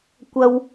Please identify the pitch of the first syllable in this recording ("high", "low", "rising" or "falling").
high